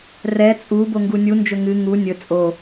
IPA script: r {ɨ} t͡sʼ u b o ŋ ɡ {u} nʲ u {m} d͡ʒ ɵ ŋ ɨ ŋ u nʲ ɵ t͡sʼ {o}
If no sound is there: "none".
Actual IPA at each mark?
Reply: ɛ, u, n, o

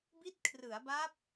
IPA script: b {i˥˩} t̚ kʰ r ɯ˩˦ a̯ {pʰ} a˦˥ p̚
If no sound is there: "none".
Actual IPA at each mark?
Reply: i˦˥, b

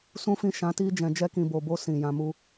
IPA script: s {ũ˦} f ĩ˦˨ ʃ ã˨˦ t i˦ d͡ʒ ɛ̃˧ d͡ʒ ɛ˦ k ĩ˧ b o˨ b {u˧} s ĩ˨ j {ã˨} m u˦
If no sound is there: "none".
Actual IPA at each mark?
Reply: ũ˦, o˧, ã˧

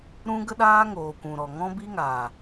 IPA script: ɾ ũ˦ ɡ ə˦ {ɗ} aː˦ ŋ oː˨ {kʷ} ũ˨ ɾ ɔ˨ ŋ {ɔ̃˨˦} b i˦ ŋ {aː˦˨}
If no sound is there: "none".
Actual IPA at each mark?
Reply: ɗ, kʷ, ɔ̃˦, aː˨

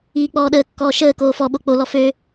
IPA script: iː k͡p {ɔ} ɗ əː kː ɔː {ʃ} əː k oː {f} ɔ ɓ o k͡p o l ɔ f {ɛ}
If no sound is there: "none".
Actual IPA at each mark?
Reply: ɔː, ʃ, f, ø

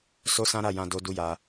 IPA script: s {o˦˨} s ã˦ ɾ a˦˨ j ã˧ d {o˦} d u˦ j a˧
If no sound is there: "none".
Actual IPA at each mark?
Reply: o˦, o˦

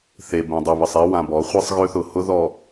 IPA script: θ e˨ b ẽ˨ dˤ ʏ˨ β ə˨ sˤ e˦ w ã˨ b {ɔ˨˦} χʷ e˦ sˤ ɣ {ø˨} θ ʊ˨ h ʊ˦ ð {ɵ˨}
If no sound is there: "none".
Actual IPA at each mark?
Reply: ɔ˨˦, ø˦, ɔ˨

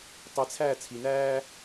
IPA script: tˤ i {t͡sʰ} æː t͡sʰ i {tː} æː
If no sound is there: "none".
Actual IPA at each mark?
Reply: t͡sʰ, n

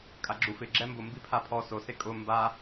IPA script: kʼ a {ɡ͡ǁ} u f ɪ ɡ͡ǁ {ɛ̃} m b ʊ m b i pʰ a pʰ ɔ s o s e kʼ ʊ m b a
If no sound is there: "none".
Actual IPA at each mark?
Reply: ɡ͡ǁ, ɛ

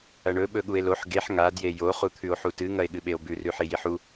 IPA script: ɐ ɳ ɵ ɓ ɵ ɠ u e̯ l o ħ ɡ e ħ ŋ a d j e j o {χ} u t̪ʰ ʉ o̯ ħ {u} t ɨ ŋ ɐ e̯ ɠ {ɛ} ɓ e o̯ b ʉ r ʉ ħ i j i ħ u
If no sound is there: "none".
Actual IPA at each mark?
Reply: χ, u, ɨ

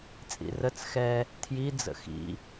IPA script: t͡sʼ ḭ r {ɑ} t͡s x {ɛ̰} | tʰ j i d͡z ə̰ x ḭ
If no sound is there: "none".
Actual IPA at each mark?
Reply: ə, ɛ

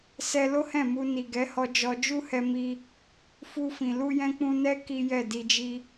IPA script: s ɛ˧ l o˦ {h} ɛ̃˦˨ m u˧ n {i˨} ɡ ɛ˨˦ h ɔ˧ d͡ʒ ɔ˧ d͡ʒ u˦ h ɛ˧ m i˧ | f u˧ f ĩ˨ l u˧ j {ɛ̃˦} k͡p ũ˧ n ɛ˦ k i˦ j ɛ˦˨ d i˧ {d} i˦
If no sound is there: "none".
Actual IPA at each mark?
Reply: h, i˨, ɛ̃˧, d͡ʒ

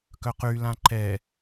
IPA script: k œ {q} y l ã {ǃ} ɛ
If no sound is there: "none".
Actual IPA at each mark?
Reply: q, ǃ

